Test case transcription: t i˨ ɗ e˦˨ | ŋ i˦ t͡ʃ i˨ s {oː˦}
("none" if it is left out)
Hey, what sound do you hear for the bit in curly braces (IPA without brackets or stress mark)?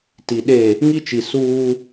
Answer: uː˦